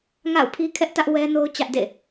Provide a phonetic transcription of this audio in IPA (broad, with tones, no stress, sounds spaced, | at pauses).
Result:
ŋ a̰˦˨ ʊ̯ pʰ i˦ kʰ ɛ˦ ʔ t ä˦ ʔ w ɛ˦ n o˦ ʊ̯ t͡ɕ ä˦ ʔ d ḛ˦˨